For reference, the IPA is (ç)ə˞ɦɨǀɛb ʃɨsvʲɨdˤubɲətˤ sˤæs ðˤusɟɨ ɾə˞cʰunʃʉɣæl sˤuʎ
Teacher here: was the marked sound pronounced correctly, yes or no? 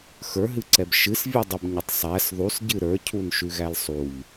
no